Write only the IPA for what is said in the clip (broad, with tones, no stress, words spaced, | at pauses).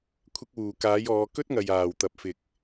kʷʰɪ˧k̚wuː˨˩ kaː˨˥jɔː˨˧ kɵ˥t̚ŋɐ˨jaː˨˩w t̪ɐ˨p̚ fɪ˨k̚